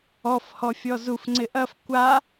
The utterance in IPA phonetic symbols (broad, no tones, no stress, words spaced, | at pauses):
ɔfhɔ fʲɔzufŋ͡ǀɪ ʔɐf kʷa